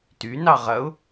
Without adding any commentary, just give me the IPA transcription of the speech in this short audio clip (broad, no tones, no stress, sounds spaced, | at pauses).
t y n ɑ ʁ ɐ ʊ̯